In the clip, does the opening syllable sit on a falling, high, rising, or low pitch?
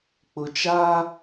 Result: low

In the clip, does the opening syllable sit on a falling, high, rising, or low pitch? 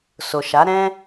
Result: low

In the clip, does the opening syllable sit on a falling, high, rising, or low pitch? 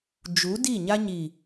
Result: rising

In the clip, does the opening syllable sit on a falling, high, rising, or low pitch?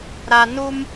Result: low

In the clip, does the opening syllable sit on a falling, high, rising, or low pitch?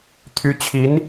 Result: rising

